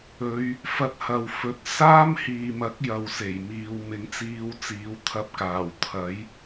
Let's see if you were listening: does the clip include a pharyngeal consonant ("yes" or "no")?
no